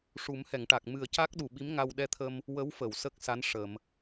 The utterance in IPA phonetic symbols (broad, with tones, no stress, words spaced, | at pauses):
ʂu˨˩˦mhɛ˨˩˨ŋʈa˨˩k̚ mɨ˨˩ə̯ca˦˥k̚ ɗu˨˩ɓi˧˥mŋa˧w ɗɛ˧t̪ʰə˧m | wə˧˥wfə˨˩˨w sə˦˥k̚sa˧˥n ʂə˨˩˨m